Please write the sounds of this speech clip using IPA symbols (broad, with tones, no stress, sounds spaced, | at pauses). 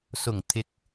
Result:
s ʊ˨˩ ŋ t̪ʰ ɪ˨ k̚